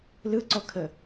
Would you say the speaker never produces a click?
no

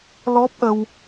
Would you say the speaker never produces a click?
yes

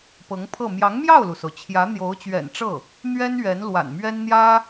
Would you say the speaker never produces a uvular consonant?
yes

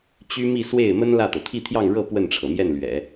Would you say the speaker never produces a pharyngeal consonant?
yes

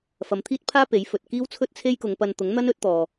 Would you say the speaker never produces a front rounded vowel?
yes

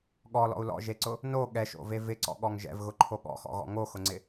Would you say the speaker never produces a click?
no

